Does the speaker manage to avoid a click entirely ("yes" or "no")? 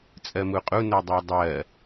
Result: yes